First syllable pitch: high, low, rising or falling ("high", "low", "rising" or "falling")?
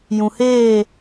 low